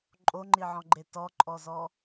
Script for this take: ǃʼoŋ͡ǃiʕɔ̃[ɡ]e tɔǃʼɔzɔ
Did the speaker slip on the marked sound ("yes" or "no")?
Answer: yes